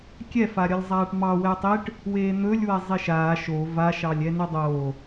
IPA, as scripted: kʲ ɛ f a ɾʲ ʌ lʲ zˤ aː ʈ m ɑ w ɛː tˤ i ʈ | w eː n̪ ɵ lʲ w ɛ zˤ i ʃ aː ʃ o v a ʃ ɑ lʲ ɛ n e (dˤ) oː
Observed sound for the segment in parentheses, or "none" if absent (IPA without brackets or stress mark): dˤ